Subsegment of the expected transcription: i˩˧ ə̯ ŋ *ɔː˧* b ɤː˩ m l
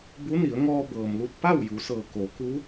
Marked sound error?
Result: no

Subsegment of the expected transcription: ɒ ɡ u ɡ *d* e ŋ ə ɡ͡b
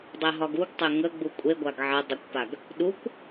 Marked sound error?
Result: yes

